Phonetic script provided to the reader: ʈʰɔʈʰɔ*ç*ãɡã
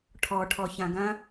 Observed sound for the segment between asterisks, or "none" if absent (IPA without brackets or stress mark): ç